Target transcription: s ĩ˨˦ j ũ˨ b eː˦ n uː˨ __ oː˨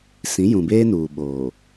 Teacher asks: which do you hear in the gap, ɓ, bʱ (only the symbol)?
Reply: ɓ